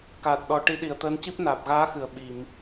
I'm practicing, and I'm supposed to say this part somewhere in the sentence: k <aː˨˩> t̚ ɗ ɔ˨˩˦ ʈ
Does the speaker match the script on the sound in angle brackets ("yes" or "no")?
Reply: yes